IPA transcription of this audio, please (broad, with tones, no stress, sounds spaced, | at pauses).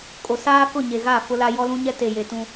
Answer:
kʼ o˨ s aː˦ k ʊ˦˨ ɲ e˨ ɣ aː˦˨ f ʊ˦ l a˦ j ɔ˦ l ũ˦ ɲ ɛ˦ t e˨ j e˨ t ũ˦